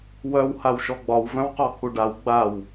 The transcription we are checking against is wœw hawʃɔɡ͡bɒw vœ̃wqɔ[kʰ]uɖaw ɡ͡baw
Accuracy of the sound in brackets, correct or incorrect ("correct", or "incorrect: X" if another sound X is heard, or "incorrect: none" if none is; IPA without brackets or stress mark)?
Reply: correct